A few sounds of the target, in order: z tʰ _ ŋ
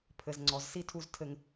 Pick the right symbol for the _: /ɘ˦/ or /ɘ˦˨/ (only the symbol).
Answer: ɘ˦